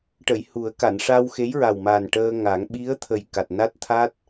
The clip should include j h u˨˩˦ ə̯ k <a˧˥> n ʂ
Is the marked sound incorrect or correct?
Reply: incorrect